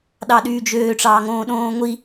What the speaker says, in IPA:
ɗ ɑ ɗ yː d͡ʒ øː ʈ͡ʂ ɑː ŋ õː ɗ õː ŋʷ i

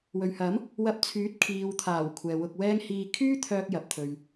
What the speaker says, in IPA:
w ɵ˨ ɥ h ɐ˨˥ m | w ɐ˧ p̚ t͡sʰ yː˨˥ t̚ kʰ iː˨ w t̪ʰ aː˨˩ w kʷʰ ɛː˨ w ʊ˧ k̚ w ɛː˥ ŋ h iː˧ kʰ yː˥ t̪ʰ œː˧ k̚ j ɐ˨ p̚ t̪ʰ ɵ˨ ɥ

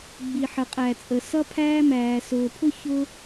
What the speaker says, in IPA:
ɡ͡b i˨ ħ ə˨ qʼ æ˨ t͡sʼ ə˨ s ʌ˦ pʰ æː˦ m æː˨ s ʊː˨ pʰ ʊ˦ ç ʊ˦

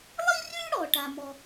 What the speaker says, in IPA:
lˠ i˥ r ʉ˥ ɽ ɔ˥ ʈ a˥ m ɔ˥

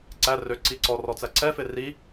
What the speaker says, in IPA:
ǀ æ r ø ǀ i ǀ ɔ r ɔ t͡s æ ǀ ɛ f e r i

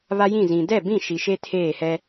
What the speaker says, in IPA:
β a˦ j ĩ˦˨ z ĩ˨ d ɛ˦˨ b ĩ˦˨ ʃ i˨ ʃ e˦ tʰ eː˦˨ h ɛ˦

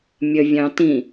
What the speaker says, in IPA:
mʲ ə vʲ ɑ̃ t ĩ

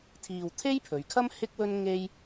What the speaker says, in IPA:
t̪ʰ iː˧ w t̪ʰ e˥ j pʰ ɵ˨˧ ɥ kʰ ɐ˥ m h ɪ˥ k̚ w ɵ˥ n ŋ e˥ j

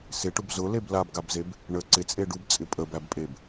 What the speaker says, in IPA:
s ɪ ʈ ʊ b z ʊ l e b l a b ɡ a b z e b | ɳ ə ǀ ɪ t͡sʼ e ɖ u b t͡sʼ ɪ pʼ ə b æ b pʼ e b

